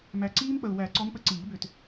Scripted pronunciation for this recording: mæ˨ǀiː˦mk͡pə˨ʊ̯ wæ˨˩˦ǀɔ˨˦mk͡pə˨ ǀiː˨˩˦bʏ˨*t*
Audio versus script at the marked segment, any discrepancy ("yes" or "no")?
no